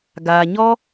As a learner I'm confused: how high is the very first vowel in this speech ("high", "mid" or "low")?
low